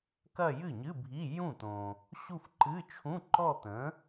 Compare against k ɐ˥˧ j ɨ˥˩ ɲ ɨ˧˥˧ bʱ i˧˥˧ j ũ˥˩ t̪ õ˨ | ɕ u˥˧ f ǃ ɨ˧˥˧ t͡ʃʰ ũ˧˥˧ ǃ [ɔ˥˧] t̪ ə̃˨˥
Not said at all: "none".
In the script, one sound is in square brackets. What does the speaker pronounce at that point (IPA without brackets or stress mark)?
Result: ɔ˥˧